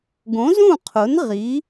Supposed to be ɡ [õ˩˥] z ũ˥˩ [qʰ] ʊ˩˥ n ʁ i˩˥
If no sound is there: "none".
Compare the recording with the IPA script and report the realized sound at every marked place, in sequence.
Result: õ˩˥, qʰ

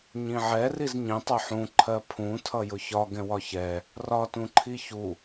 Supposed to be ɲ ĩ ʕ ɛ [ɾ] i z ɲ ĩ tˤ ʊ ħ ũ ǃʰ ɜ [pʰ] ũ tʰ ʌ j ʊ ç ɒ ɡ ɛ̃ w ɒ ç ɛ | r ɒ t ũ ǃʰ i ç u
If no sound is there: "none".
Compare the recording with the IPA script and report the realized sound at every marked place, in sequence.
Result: r, pʰ

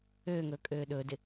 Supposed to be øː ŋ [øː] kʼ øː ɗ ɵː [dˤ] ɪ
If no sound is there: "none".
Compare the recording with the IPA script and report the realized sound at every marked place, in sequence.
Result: ɵː, d

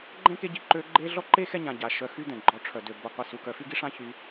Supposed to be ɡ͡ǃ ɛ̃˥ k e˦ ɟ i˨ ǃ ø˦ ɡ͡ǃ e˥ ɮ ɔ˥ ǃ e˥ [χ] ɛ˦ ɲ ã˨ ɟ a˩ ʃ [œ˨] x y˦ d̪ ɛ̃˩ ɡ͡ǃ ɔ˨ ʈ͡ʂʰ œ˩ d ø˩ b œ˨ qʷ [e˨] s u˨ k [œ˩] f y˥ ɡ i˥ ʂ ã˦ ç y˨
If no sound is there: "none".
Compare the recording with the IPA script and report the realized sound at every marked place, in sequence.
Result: x, œ˨, i˨, œ˨

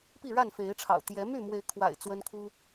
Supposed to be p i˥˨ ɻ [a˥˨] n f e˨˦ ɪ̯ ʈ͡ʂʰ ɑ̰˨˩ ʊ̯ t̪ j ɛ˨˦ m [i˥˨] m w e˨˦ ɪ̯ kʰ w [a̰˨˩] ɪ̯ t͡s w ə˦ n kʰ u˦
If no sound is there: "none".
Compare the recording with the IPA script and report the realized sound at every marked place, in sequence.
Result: a˥˨, y˥˨, a̰˨˩

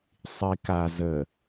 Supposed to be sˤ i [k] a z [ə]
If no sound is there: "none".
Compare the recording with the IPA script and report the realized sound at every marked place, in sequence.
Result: k, ə

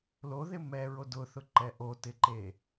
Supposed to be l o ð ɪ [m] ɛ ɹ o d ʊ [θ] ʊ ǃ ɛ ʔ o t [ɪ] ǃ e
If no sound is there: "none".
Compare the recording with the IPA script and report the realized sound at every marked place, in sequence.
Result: m, θ, ɪ

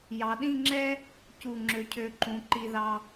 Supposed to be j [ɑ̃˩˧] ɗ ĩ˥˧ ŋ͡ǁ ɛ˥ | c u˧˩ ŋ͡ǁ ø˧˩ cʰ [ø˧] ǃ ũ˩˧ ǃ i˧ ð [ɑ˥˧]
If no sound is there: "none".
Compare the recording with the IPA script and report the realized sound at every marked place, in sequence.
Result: ɑ˩˧, ø˧, ɑ˧

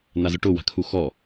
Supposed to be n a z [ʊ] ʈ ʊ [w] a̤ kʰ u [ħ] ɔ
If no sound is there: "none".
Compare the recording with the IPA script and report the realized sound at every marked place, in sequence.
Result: ʊ, w, x

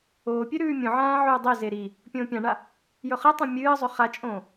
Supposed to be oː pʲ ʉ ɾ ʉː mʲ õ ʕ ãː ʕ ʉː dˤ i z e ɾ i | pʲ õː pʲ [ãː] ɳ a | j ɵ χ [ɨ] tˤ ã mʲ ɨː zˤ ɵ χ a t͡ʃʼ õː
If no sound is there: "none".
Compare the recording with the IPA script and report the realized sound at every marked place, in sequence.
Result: ã, ɨ

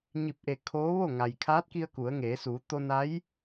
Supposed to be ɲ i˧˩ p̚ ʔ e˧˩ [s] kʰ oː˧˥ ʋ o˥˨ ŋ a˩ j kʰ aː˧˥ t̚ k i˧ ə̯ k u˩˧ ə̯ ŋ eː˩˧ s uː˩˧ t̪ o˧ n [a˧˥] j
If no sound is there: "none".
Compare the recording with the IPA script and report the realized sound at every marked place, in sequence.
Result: none, a˧˥

